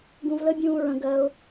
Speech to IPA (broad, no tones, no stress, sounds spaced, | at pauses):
ɡ ũ v l ə bʲ ũː ɹ ə̃ ɡ ɜ ʊ̯